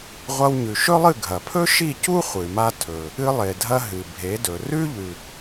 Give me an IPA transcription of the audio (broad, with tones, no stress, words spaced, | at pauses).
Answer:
ʁʷɐ˧wɲʉ˩ʃɵ˥lˠɨ˥˩ ɡʱɐ˩pʰɵ˥ ʃi˥˩cu˥ χʷɨ˩ma˧ tʰɵ˩ | ɨ˧lˠe˩dʱɐ˧ ɦɨ˩bʱe˩˥dɵ˩ rʉ˥ ʎʉ˩